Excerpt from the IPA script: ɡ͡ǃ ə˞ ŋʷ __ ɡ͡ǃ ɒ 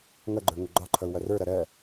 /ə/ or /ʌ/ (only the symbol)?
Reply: ə